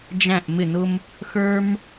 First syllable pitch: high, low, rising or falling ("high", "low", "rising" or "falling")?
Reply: falling